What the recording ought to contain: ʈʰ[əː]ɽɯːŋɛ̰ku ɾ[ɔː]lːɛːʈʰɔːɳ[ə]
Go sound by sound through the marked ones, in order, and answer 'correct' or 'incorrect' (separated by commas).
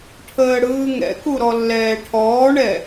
correct, incorrect, incorrect